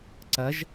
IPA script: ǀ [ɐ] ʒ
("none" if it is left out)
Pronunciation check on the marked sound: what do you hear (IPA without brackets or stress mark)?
ɐ